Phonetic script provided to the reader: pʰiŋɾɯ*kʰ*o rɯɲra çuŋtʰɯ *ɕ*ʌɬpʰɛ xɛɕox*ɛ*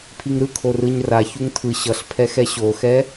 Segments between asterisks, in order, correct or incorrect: correct, correct, correct

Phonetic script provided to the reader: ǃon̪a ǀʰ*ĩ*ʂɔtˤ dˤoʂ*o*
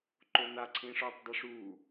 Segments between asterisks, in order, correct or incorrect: correct, incorrect

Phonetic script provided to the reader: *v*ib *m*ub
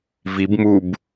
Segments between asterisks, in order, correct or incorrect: correct, correct

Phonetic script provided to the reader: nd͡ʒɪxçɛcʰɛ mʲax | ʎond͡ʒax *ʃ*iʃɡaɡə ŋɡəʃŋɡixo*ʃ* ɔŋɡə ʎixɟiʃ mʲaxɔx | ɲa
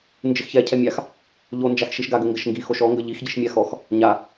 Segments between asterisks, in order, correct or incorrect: correct, correct

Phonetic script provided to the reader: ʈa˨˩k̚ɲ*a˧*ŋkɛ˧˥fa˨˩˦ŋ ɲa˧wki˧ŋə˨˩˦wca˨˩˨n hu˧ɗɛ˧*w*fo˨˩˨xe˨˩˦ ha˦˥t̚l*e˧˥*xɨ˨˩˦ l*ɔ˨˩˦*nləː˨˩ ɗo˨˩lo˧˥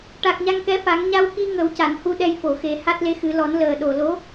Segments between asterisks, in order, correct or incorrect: correct, incorrect, correct, correct

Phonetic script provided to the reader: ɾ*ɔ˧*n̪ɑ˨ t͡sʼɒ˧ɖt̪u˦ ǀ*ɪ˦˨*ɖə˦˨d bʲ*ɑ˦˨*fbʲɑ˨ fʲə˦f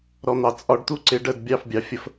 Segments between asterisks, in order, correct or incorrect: correct, incorrect, correct

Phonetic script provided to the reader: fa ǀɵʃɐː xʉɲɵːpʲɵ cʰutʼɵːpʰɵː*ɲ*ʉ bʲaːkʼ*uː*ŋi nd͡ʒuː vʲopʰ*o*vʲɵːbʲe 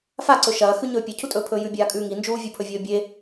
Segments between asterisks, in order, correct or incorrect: incorrect, incorrect, incorrect

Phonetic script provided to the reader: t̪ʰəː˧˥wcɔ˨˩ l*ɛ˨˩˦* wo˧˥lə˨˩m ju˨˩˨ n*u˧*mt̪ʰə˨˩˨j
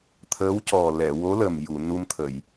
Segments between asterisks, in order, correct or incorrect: incorrect, correct

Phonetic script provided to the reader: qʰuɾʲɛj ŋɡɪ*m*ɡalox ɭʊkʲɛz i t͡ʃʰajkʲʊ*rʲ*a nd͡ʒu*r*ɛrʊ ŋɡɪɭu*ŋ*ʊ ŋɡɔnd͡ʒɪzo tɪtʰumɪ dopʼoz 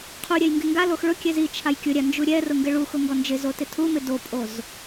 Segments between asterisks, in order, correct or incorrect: incorrect, incorrect, incorrect, incorrect

